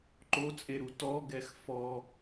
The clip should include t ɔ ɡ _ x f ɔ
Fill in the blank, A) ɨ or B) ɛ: B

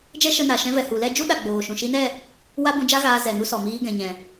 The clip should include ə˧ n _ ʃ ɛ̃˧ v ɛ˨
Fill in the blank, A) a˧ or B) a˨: B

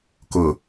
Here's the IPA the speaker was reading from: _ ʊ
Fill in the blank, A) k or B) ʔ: A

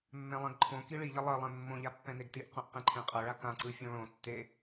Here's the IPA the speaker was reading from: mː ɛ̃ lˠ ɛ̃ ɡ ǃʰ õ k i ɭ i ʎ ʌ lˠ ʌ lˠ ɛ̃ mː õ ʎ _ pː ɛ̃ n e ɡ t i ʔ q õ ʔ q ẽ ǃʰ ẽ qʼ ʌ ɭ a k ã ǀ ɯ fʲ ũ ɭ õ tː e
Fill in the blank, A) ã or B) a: B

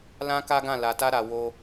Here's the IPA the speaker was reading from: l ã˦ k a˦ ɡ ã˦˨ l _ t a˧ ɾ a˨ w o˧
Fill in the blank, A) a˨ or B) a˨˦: A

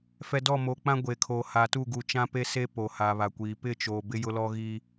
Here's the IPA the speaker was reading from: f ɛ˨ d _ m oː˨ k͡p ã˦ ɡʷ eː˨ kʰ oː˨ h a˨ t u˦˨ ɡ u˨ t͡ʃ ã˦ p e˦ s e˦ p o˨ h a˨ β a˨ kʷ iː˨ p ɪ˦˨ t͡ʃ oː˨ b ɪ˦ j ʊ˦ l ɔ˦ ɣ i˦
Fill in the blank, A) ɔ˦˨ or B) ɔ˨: A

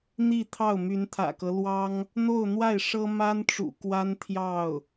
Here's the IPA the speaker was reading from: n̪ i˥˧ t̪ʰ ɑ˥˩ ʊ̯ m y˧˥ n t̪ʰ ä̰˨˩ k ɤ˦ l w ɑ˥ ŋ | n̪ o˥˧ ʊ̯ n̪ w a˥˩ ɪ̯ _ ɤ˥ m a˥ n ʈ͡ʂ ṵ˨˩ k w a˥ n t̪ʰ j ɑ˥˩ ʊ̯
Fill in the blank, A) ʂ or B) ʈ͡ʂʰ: A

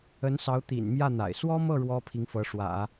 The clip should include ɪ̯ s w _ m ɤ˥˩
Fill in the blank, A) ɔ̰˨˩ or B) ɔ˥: B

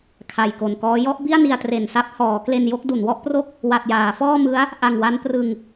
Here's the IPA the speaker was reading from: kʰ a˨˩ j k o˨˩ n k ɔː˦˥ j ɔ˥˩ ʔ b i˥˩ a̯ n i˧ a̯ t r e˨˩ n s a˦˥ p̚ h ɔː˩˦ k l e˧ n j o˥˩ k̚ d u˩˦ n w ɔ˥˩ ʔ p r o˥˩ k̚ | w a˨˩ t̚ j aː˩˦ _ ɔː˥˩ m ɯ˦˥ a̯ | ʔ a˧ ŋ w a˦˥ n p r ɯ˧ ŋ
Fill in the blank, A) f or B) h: A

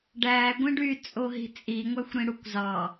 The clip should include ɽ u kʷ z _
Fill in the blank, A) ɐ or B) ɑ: B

